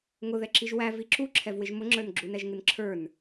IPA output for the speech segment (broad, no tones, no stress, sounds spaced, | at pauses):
ŋ ʊ ð ɛ ǁ i ʒ w æ v i ǁ u ǁʰ ɛ v w ɪ ʒ m ʊ ŋ͡ǁ ə˞ n ɡ͡ǁ u n ɛ ʒ ŋ ɪ n ǁʰ ə˞ n